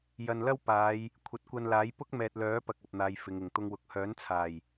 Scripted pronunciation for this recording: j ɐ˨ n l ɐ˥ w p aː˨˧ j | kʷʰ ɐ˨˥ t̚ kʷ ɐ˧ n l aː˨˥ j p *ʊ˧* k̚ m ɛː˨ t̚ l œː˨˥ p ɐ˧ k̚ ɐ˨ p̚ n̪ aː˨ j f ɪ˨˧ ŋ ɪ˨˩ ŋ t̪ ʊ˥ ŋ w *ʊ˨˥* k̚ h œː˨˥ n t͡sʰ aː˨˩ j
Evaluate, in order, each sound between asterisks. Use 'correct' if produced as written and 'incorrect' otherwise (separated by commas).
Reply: incorrect, incorrect